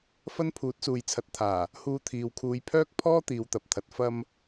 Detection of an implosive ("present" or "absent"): absent